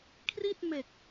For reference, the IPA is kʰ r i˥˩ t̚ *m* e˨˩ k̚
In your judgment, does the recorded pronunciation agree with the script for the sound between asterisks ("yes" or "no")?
yes